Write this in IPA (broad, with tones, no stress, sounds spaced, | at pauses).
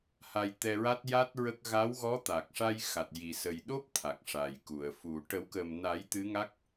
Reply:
h a˧ j t̪ ɛ˧ ɹ a˦˥ t̚ j a˦˥ t̚ ɹ ə˦˥ k̚ ɣ a˧˥ w ɣ ɔ˧˥ t̪ a˨˩ k̚ ʂ a˧ j x a˨˩ t̚ j i˨˩ s ə˨˩ j ɗ o˦˥ p̚ t̪ʰ a˨˩ k̚ ʂ a˨˩ j k u˨˩˨ ə̯ f u˨˩˨ ʈ ə˨˩˦ w k ə˨˩ m n a˨˩˦ j t̪ ɨ˧˥ ŋ a˦˥ k̚